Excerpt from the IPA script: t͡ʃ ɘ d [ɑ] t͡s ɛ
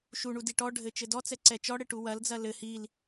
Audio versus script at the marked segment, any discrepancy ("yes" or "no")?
yes